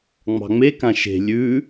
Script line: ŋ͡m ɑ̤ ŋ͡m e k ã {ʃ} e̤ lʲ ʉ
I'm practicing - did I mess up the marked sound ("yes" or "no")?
no